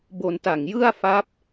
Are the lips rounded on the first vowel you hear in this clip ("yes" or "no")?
yes